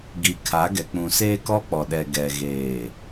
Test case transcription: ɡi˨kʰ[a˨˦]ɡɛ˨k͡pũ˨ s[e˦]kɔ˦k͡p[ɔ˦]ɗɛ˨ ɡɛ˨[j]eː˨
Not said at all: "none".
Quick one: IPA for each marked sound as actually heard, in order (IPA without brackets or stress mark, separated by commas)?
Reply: a˨˦, eː˦, ɔ˨, ɣ